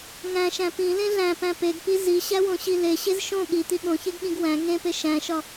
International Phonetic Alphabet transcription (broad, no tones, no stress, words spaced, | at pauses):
ŋæ̃ʃæ̃ pĩlẽ ɮæ̃pæ̃ peɡpi ziɕæwõɕi leɕez ʃõ ɠit̪i ɠõçeɡɠĩɡ wæ̃ ŋẽpe ʃæ̃ʃɒ